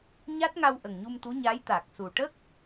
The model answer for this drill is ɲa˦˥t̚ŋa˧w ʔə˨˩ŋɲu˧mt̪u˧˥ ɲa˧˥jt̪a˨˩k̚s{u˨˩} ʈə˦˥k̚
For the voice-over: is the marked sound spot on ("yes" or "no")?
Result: yes